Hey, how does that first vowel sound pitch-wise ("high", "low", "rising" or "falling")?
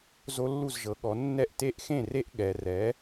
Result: high